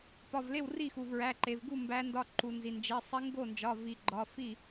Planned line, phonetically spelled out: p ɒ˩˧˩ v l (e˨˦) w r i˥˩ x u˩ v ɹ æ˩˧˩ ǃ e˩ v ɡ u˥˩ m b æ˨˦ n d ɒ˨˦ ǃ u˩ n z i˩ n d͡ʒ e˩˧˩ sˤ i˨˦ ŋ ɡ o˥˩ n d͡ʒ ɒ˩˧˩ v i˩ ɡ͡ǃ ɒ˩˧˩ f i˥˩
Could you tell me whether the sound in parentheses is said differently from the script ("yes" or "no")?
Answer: yes